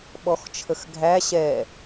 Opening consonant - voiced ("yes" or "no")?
yes